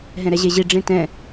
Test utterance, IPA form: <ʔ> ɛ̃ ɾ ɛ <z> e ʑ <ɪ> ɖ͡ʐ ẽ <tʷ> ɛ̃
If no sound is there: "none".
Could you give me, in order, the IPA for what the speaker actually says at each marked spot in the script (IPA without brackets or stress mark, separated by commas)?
ɦ, ʑ, i, t